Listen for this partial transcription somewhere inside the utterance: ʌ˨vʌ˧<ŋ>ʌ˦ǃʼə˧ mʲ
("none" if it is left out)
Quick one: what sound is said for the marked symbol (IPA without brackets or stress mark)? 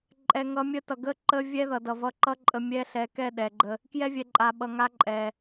ǃ